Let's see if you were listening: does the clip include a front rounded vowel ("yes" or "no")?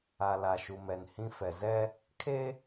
no